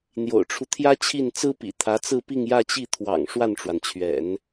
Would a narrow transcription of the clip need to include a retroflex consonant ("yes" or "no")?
yes